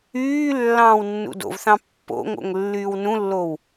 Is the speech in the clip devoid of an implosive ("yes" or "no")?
yes